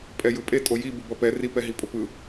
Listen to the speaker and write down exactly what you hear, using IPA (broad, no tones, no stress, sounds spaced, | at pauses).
pʼ ɛ j ɯ pʼ e tʼ o j i b u b ʌ p ɛ r i p ɛ ɦ i pʼ o p ɯ